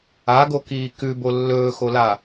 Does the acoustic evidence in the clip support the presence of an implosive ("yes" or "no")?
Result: no